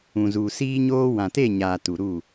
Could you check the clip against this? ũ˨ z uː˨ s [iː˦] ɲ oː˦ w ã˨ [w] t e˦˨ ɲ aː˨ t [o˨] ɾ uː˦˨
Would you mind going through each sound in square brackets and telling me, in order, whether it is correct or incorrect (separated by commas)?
correct, incorrect, incorrect